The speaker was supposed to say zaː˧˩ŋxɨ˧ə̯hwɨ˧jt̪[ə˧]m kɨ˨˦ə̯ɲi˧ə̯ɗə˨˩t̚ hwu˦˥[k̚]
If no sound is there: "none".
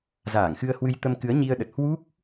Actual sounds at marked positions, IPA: ə˧, k̚

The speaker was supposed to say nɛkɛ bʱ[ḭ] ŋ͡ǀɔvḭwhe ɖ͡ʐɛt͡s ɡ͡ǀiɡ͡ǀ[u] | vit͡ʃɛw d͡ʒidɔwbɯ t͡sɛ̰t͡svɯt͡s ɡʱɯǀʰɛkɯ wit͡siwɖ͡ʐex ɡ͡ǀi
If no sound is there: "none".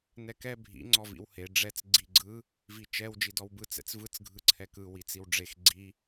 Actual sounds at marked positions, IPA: ḭ, ɯ

